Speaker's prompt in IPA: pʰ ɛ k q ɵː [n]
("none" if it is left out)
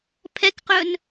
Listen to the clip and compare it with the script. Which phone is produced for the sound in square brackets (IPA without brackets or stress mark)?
n